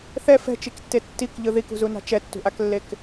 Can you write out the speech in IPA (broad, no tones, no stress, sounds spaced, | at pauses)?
θ ɛ f ɛ̤ t͡ʃ i k tː e tː i k ʎ ɯ ð i k ṳ z u n a̤ t͡ʃ ɛ tː ṳ ʔ a k lː e k